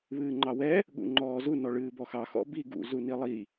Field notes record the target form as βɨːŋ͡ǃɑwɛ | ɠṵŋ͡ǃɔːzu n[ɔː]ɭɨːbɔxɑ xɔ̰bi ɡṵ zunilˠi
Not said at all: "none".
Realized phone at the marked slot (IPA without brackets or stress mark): ɔ